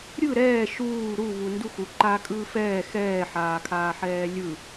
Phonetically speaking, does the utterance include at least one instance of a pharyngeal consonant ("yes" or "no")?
yes